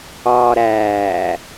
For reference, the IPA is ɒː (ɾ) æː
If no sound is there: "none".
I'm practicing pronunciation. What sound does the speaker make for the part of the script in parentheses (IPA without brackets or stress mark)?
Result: ɾ